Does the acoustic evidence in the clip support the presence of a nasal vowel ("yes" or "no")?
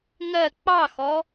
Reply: no